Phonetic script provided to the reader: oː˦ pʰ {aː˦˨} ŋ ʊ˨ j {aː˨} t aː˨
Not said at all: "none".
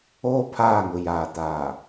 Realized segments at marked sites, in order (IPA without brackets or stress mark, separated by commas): aː˦˨, aː˨